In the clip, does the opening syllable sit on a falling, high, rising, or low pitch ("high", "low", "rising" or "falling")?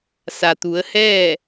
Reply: low